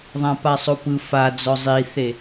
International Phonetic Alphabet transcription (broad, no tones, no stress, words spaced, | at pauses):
ðˤãpasˤopɯ fa d͡zɔzˤiθe